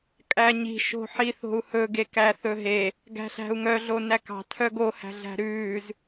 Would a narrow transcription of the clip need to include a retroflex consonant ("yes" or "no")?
no